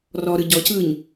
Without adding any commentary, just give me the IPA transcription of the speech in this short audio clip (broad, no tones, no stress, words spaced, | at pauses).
rɔɾɯ ɟɔcɯːɲ